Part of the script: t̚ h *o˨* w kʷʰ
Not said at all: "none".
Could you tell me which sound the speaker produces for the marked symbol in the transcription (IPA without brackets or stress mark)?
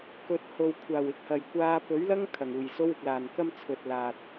o˨